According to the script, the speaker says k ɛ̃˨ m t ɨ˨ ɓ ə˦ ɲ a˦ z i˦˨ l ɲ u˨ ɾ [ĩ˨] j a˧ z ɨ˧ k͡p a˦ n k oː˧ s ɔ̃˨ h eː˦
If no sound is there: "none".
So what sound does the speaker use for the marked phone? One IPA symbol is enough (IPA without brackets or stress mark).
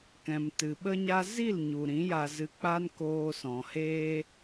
ĩ˨˦